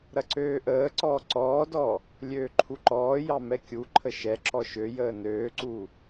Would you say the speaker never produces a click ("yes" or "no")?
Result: no